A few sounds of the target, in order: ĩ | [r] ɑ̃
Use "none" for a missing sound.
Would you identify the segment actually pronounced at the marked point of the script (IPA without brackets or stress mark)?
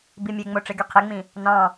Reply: n